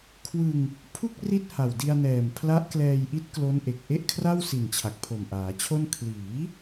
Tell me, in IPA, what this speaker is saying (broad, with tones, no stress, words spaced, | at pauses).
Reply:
kʰwɯ˧ŋ | pʰu˥˩k̚ ri˥˩t̚ha˨˩wdi˧a̯nɛː˨˩m pʰla˦˥ʔklɛː˧jʔi˦˥t̚ klo˦˥nʔe˨˩k̚ ʔe˥˩ʔkʰra˥˩wsi˨˩n t͡ɕʰa˨˩k̚pʰo˨˩mʔaː˩˦t͡ɕʰo˥˩n kʰliː˩˦